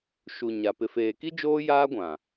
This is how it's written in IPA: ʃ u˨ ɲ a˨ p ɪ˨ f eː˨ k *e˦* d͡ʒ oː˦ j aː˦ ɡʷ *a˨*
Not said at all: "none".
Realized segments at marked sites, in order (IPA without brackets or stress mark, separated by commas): i˦, ã˨